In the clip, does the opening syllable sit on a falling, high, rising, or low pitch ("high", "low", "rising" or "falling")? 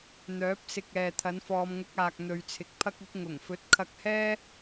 rising